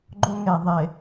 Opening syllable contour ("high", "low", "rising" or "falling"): high